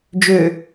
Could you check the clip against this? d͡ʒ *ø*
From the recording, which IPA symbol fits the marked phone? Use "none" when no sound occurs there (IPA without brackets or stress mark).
ø